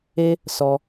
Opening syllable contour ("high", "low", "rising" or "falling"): high